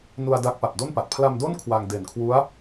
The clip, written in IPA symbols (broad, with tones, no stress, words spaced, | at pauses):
nu˧a̯ da˦˥k̚pa˨˩p̚do˥˩npa˨˩t̚ pʰla˧mdo˥˩n kʰwa˧ŋde˨˩nkʰwu˦˥a̯